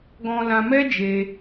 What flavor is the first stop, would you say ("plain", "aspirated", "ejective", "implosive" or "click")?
plain